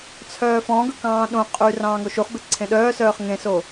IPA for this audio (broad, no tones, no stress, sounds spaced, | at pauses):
t͡sʰ œː f ɔ̃ ɡ ɵ k ɑ̃ː ɗ õ qʼ yː r ɑ̃ː ŋ o ʃ u χ b e ǀʰ ẽ ɗ œː s œː χ ŋ ẽ s o